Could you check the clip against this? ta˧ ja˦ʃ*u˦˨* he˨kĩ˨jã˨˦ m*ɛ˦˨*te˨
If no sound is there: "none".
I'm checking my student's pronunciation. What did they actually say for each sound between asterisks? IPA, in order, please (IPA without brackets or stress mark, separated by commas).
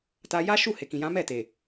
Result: u˦˨, ɛ˦˨